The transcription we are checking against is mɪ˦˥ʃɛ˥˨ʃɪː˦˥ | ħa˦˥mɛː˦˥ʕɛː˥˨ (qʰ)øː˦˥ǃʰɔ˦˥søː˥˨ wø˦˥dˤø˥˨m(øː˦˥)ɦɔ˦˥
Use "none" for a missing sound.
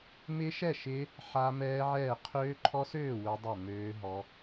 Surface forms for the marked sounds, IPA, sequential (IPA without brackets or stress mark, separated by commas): qʰ, øː˦˥